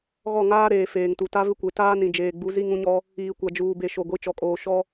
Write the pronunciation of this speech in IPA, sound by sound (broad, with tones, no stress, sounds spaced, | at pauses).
ɣ ɔ˦˨ ŋ aː˦ ɾ eː˨ f eː˨ ŋ t u˨ t a˦ v ɪ˦ kʷ e˨ t aː˦ n ĩ˨ d͡ʒ eː˨ ɡ͡b u˨˦ z i˦ ŋ ũ˦ ɲ ɔ˦ | iː˨ kʷ a˨ d͡ʒ uː˨ b e˨ ʃ o˨ ɡʷ i˨ t͡ʃ ɔ˨ kʼ oː˨ ʃ ɔ˦